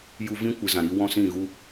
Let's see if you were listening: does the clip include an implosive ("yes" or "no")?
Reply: no